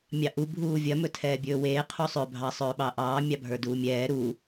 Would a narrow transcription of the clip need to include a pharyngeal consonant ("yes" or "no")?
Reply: no